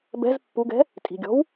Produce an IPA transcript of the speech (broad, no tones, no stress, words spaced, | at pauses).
bɛ̤z pːuɡɛ̤ | tʼi̤ɡʲɔ̤w